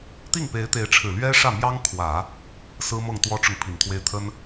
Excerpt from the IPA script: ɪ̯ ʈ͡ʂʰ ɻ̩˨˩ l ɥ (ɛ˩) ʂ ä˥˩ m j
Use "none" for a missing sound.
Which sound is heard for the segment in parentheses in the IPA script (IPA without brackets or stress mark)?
ɛ˥